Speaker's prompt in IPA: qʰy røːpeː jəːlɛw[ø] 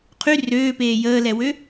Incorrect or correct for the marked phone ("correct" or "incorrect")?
correct